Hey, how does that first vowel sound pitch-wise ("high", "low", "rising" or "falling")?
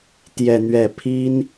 falling